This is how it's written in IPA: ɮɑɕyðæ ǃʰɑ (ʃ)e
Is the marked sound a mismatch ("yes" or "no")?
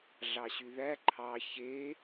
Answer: yes